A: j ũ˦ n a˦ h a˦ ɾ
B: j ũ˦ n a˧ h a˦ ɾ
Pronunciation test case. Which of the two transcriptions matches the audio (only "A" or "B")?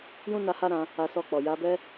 B